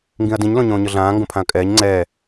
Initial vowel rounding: unrounded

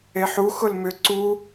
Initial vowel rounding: unrounded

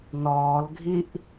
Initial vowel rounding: rounded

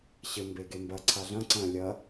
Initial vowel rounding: unrounded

